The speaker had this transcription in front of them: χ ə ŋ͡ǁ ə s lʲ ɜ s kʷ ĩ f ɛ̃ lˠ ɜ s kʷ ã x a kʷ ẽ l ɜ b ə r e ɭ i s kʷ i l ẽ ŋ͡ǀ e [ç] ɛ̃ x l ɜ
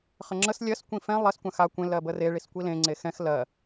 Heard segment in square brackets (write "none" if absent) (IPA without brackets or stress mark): x